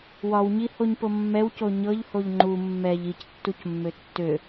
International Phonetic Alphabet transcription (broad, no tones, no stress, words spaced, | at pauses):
wɒwɲihoɲpo mːɛwco ɲɤʎhoʎ ŋ͡ǃu mːɛʎ ictːucmːø tːø